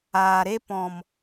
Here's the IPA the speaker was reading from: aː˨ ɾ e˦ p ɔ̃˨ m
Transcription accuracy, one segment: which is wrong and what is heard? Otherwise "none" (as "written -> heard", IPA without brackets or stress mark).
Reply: none